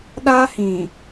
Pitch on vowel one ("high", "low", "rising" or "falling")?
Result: high